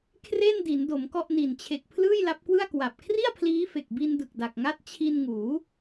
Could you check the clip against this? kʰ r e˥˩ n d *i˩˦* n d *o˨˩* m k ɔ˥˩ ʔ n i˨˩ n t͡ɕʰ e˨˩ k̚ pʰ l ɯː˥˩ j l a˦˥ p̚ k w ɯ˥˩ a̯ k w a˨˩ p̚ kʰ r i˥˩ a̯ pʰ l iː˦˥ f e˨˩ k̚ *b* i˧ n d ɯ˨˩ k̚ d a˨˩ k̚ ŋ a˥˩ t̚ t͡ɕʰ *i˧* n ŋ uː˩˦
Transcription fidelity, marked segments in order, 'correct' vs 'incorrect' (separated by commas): correct, incorrect, correct, correct